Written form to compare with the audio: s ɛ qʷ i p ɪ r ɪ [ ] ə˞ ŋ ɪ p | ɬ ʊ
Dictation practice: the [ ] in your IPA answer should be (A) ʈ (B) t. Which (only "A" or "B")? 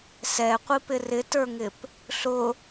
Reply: B